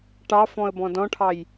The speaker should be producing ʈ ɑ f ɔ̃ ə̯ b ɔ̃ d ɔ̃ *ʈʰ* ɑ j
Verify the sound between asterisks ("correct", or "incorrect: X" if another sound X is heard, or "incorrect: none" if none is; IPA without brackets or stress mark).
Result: correct